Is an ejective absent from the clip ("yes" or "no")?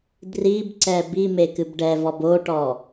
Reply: yes